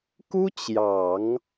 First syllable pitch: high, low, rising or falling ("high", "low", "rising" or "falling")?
high